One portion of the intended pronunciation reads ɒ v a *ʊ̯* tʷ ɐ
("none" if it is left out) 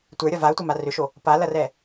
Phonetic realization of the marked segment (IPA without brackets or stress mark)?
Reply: ʊ̯